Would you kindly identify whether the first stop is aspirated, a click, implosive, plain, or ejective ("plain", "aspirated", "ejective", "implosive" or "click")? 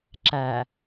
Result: click